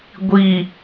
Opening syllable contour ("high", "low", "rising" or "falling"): low